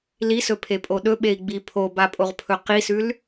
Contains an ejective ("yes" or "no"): yes